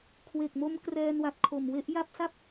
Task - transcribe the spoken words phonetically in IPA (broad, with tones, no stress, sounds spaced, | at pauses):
kʰ w e˨˩ k̚ m o˦˥ m k r ɛː˧ n w a˨˩ t̚ kʰ o˨˩ m w e˦˥ ʔ j a˥˩ p̚ s a˥˩ p̚